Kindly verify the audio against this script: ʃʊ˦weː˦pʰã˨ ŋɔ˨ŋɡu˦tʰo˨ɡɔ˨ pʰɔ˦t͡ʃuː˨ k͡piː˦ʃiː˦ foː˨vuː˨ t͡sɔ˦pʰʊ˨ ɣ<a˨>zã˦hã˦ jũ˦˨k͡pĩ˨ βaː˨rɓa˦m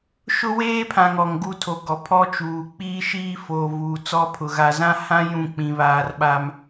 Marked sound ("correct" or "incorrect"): correct